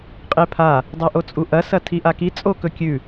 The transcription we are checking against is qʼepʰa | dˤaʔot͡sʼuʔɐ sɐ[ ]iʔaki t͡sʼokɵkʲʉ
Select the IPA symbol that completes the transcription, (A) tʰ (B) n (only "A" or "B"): A